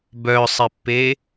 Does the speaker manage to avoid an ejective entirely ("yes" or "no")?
yes